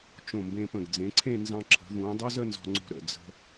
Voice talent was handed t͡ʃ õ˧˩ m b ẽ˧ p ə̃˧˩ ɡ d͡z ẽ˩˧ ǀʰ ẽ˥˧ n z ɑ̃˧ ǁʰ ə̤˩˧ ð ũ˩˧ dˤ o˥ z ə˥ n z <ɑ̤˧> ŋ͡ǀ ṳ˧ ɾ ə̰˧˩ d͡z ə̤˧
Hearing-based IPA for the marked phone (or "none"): ɔ̤˧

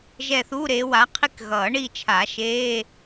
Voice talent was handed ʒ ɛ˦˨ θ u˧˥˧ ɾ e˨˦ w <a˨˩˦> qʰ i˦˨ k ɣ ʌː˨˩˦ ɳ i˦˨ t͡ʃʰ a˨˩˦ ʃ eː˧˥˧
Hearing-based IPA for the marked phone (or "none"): a˨˦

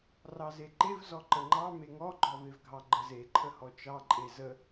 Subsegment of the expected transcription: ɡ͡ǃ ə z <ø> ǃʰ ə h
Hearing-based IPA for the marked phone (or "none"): e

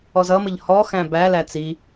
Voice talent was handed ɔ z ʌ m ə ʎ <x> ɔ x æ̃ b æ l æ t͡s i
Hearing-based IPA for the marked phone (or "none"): h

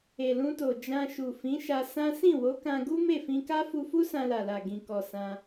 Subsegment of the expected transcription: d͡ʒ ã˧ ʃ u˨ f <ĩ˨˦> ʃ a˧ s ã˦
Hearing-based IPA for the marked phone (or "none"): ĩ˨˦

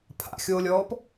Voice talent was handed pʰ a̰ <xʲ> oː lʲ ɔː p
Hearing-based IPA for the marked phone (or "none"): xʲ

